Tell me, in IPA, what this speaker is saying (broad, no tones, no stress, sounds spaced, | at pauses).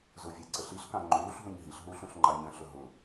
z ʊ vʲ æ ǀ ə ɬ i ɬ k ɑ̃ ŋ͡ǃ uː ɬ ɦ ũ ɲ ɦ i ɬ ɦ uː ɬ ũ ɬ ŋ͡ǃ ɑ ɲ ə̃ ɬ ʊ ɦ ʊ